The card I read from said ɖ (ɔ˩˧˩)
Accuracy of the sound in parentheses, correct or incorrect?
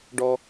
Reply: incorrect